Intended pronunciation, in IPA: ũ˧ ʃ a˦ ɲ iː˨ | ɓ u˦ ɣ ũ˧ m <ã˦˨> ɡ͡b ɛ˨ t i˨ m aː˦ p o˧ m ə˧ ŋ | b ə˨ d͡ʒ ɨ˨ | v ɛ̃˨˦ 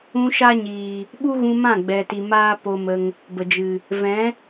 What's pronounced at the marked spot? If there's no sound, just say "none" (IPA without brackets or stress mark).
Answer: ã˦˨